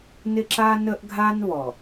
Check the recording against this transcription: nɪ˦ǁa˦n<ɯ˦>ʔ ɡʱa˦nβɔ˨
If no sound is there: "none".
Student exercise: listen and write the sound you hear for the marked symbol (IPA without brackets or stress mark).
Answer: ə˦